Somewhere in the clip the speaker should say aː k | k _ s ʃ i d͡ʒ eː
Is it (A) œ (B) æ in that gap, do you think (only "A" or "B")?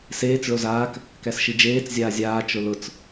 B